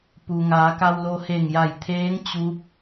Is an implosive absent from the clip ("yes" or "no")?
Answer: yes